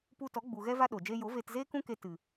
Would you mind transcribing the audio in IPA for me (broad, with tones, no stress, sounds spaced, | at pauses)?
p u˧ t ɔ˨˦ ɡ͡b u˨ ɣ ɛ˦ v a˦ ɗ oː˨ d͡ʒ eː˦ j o˨˦ v eː˧ t z eː˦ k ũ˦ k e˧ t ɨ˨